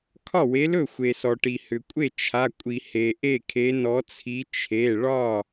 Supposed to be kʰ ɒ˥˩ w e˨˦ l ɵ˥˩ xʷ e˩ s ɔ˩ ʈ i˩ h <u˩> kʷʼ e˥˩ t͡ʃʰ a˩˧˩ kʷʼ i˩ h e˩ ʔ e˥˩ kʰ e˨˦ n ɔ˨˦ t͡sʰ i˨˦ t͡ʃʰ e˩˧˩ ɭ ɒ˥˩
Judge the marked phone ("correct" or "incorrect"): incorrect